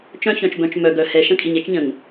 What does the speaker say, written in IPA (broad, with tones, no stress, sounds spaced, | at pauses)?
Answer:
t͡ʃ œ̃˦ ç œ̃˨ t͡ʃ b œ̃˨ t͡ʃ m œ˨ ɡ œ˨ h ɛ˨ ʃ ə̃˦ kʼ i˨ ɲ ɛ˦ t͡ʃ ɲ ə̃˨ ŋ